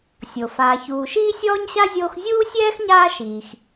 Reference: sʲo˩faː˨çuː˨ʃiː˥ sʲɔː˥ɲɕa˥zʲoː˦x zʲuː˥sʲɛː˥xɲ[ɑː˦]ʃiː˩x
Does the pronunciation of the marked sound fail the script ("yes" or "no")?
yes